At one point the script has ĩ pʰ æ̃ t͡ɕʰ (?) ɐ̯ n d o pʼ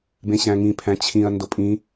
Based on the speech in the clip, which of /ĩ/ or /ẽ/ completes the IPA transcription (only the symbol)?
ĩ